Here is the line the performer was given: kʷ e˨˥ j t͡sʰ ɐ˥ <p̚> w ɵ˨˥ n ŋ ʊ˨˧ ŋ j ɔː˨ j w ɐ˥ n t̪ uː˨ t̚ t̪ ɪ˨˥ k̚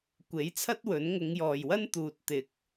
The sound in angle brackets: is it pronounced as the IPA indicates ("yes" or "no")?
no